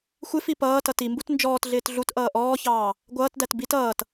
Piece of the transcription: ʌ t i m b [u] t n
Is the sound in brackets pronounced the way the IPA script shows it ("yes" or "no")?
yes